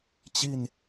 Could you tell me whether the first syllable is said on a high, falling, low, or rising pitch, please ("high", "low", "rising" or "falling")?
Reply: falling